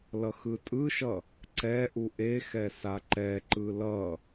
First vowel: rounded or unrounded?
unrounded